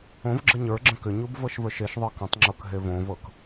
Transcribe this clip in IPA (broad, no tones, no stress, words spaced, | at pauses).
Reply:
õvɡ͡ǁə ɲə˞ɡ͡ǁə̃ kʏɲub vɤʃvə˞ʃeʃðˤɤ kə̃tˤŋ͡ǁok ɦevõvɤk